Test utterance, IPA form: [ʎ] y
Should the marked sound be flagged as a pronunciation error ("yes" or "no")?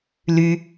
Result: yes